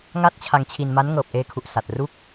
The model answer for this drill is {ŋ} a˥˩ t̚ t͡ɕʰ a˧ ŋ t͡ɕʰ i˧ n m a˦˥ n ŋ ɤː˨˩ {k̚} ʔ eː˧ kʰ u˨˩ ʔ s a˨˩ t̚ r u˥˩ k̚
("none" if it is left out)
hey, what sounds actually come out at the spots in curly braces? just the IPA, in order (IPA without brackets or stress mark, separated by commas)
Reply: ŋ, p̚